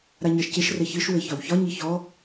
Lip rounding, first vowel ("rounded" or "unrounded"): unrounded